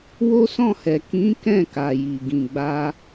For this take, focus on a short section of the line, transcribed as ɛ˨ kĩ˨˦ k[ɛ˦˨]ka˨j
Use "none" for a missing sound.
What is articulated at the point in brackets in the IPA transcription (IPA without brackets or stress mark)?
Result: ɛ̃˦˨